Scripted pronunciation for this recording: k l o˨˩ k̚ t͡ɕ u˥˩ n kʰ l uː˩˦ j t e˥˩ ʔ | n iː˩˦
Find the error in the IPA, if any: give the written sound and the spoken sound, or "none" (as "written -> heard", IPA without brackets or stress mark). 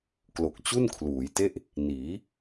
none